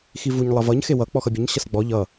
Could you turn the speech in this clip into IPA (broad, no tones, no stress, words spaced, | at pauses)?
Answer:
xivuɲ lˠʌvʌɲ xewʌ k͡pɔxʌbʲəɲ ɕʌsɡ͡bɔ ʎʌ